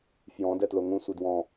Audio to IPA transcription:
fjɔ̃ dɛtloŋũ sʷɘdwɔ̃

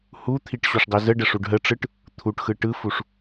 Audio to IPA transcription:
hut̪ʰiʈ ɕuʂdˤizəɖə ʂuɖɦəʈ͡ʂɯʈ | t̪ʰuʈxɯ ʈɯfuʂ

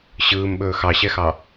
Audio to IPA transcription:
ɕɯːmɓɵː xɑɕɛxɑ

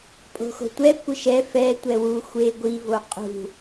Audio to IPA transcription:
pʼo̤xo̤tʷɛ kʷɘʃɛ fɛ tʷɛwu xʷe ɡʷi voqʼṳ

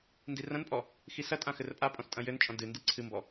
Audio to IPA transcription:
ndirɐ̃npʼɔ | xisɐtʼã xɘrpʼapʼɔ̃s tʼɐ̃jɘnt͡ʃʼɔ̃ dɨ ndiǀʰɨmbɔ

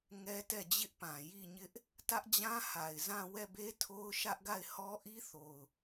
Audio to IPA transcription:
ŋɛ˦tɛ˦˨d͡ʑɪ˦ʔpã˨ ji˦˨ɲɪ˦ʔ | tä˦ʔd͡ʑã˦ha˨ɪ̯ zã˦˨ wɛ˦˨be˦tʰo˦ʊ̯ ʃä˦ʔɡa˦˨ɪ̯ hɔ˦ʔi˦ θo˨ʊ̯

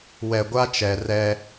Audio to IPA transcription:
wɛ˨ɡʷa˦ t͡ʃɛ˨ rɛ˦

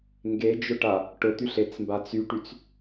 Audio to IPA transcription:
ŋɡed͡ʒʊʈa | ʈʊt̪yɬet͡smba t͡syʈyt͡s

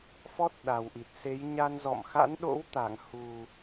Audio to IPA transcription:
fɔ˦˥t̚ɗa˨˩wʔi˨˩t̚ se˨˦j ɲa˧nzɔ̰˧˨m xa̰˧˥nɗo̰˧˥w t̪a˧˩ŋ hu˨˩

